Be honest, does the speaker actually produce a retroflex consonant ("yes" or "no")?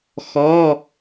no